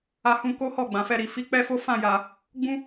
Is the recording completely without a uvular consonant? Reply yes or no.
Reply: yes